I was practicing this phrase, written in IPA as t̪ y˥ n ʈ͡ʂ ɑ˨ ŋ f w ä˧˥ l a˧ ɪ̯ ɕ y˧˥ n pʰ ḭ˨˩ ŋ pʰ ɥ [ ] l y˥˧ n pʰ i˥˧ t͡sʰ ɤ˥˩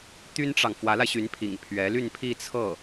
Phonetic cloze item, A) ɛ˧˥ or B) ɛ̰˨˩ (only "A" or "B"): A